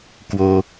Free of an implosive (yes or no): yes